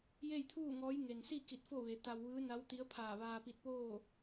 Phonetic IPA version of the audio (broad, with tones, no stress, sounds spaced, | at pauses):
j e˥˨ j t̪ʰ uː˥˨ ŋ ɔː˧˥ j ŋ e˩ n s i˥˨ k i˧˩ t̚ f o˥˨ ʋ e˩˧ t̪ a˧ w ʋ ɯː˧˥ n a˧˥ w t̪ i˧˥ ə̯ pʰ aː˧˩ ʋ aː˧ p i˧ t̚ p oː˥˨